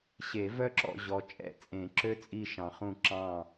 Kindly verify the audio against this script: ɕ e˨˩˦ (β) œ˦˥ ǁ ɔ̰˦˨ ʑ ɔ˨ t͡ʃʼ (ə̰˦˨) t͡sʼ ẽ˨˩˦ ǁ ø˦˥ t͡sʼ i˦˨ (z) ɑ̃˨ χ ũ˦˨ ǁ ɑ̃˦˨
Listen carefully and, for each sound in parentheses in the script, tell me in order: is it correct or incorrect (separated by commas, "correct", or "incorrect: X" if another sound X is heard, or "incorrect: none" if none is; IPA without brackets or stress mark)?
incorrect: v, incorrect: ɛ̰˦˨, incorrect: ʃ